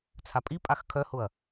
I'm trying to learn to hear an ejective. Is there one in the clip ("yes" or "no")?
yes